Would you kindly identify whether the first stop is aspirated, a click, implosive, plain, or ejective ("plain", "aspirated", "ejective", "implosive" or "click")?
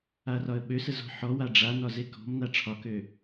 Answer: implosive